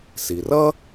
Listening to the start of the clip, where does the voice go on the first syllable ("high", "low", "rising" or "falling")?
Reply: low